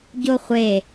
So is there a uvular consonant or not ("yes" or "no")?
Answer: yes